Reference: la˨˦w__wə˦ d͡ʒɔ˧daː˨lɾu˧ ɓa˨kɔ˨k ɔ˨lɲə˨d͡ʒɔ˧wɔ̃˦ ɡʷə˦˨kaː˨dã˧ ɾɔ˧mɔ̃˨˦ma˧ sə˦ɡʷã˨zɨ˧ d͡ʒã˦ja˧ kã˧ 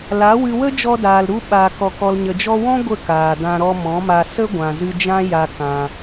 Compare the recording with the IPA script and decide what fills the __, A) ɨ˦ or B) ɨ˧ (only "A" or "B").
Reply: B